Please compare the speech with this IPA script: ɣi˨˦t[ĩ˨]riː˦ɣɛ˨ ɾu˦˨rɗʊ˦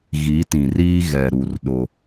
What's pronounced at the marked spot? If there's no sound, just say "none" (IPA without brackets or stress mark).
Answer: ĩ˨